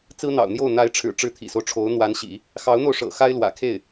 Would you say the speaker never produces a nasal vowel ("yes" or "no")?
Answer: yes